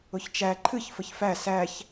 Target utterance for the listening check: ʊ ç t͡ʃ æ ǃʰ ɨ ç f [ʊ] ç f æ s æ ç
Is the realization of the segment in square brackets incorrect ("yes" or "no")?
yes